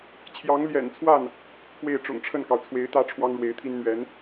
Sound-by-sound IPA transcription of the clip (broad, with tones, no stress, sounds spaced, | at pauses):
t͡ɕʰ j ɑ˧˥ ŋ l j ɛ̰˨˩ n t͡sʰ w a˥˩ n | p w e˥˩ ɪ̯ ʈ͡ʂ ʊ̰˨˩ ŋ ʈ͡ʂʰ ə˥˩ n k ɑ˩ ʊ̯ t͡sʰ w e˧˥ ɪ̯ t̪ ä˥ ʈ͡ʂʰ w ɑ˥ ŋ ɻ w e˧˥ ɪ̯ t̪ʰ i˥ n n̪ ɥ ɛ˧˥ n